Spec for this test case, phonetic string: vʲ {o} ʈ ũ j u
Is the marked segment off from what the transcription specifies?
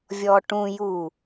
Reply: yes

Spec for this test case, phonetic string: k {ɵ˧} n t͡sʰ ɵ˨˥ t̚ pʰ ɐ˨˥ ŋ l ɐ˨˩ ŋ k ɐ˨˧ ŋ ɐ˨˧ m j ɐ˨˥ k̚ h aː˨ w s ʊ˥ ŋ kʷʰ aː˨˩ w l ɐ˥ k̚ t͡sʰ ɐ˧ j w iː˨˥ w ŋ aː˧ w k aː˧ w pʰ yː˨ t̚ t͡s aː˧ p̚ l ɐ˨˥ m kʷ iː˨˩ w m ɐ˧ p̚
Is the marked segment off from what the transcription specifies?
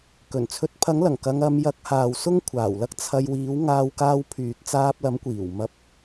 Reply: yes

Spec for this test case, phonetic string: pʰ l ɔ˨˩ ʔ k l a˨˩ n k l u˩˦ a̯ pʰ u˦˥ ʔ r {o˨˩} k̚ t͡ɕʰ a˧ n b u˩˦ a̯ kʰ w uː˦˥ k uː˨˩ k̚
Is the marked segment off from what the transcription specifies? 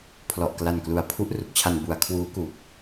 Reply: yes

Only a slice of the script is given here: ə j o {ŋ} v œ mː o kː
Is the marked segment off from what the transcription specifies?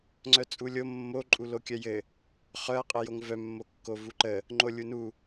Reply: no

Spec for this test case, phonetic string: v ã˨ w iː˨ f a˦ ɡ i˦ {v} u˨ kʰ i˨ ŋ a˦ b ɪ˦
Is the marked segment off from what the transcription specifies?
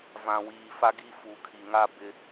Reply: yes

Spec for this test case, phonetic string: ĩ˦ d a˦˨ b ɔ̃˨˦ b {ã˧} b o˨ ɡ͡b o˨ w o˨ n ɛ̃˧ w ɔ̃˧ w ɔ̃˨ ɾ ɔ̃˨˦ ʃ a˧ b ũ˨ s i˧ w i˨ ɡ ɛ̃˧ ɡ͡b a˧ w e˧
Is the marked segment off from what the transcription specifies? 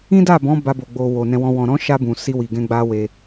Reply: yes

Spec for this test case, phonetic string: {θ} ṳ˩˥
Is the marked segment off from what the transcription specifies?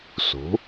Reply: yes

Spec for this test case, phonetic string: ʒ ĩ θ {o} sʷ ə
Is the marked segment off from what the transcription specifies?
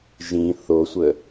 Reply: no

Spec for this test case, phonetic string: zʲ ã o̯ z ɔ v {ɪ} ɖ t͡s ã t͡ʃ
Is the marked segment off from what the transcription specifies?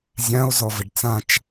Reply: no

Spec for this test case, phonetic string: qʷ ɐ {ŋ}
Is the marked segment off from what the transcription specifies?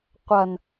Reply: yes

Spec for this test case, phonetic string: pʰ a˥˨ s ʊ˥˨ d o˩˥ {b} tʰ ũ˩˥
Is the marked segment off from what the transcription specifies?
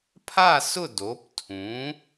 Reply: yes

